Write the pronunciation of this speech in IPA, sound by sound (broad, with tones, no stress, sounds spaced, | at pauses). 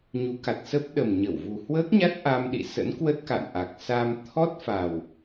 ɲ u˨˦ k a˨˩ t̚ s ə˦˥ p̚ ɗ ə˨˩ m ɲ ə˧˩ w v u˨˩ h w əː˦˥ k̚ ɲ a˦˥ t̚ ʔ a˧ m ɗ ḭ˧˨ s ə̰˧˥ n k w ə˦˥ t̚ k a̰˧˨ n ʔ a˨˩ k̚ s a˧ m t̪ʰ ɔ˦˥ t̚ f a˨˩ w